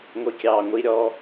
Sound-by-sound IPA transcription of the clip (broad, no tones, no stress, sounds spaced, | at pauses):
ŋʷ i kʲ ɑː ŋʷ i ɾʲ ɔ